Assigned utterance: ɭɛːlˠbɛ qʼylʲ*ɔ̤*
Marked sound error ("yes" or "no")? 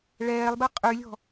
no